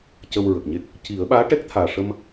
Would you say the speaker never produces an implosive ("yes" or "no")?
no